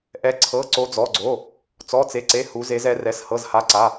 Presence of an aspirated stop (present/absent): present